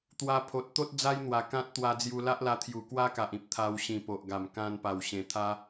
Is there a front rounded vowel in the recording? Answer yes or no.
no